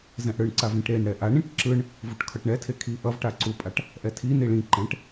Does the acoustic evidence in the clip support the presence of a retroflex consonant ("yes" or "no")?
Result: yes